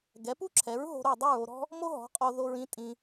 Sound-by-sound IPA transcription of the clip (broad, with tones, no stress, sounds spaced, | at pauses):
ɡ ɛ˩˥ p u˥ ǁʰ ɛ˩˥ ɹ ɦ o̤˧ ɾ o˥˩ dˤ ɯ˥˩ ɹ o˧ ɾ ɔ̤˥ | m o˥ ɦ ɔ̤˩˥ qʼ o˧ ð o˧ ɹ ĩ˩˥ tʼ ĩ˧